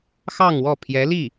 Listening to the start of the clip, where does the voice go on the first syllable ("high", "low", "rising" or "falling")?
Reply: falling